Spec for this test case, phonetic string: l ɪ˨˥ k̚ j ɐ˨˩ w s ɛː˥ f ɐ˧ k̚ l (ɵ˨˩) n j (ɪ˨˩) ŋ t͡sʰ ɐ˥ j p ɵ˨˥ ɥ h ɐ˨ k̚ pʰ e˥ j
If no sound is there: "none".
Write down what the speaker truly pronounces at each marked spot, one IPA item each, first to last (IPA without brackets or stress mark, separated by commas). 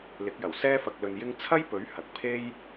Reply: ɵ˧, ɪ˥